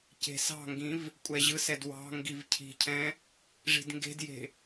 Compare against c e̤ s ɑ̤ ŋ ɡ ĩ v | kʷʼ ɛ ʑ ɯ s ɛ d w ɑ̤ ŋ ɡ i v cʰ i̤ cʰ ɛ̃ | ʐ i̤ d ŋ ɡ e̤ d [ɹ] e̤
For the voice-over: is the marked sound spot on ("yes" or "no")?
no